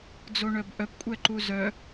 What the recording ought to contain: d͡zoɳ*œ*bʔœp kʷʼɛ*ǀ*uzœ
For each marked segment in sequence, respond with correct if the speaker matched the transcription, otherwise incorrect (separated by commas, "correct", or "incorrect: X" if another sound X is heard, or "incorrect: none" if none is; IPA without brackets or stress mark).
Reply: correct, incorrect: ǃ